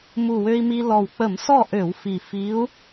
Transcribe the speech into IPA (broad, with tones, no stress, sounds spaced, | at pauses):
m u˨˩ w ø˧ i̯ m i˧ l ɔ˨˩ w k͡p ə˧˩˧ m s ɔ˥˨ ʔ ø˧˩˧ w f i˨˩ f i˧˥ u̯